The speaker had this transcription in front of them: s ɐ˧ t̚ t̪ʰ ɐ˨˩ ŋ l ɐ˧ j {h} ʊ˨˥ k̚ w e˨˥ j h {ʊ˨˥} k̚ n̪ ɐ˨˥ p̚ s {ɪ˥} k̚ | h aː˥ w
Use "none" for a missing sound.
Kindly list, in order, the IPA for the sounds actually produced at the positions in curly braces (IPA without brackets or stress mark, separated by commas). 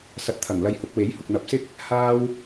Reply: h, ʊ˨, ɪ˥